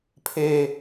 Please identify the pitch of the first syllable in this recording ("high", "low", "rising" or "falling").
high